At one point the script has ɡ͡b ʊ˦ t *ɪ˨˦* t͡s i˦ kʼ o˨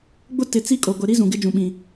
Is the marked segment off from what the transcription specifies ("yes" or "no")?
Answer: no